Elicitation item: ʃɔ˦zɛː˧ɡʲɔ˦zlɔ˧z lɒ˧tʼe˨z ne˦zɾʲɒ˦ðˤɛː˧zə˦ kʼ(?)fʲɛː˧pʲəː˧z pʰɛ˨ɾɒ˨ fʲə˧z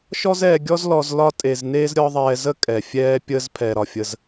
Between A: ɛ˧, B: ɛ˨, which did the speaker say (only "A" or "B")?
B